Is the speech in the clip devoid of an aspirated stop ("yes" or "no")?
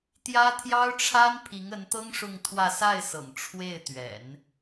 no